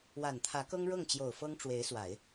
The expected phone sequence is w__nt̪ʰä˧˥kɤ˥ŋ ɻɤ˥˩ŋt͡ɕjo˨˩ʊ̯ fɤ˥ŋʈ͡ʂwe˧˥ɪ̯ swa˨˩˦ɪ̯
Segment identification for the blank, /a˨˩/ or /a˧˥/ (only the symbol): a˨˩